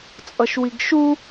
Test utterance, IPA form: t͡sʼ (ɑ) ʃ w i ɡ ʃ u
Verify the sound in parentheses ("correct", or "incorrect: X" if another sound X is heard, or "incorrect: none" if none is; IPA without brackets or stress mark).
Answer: incorrect: ʌ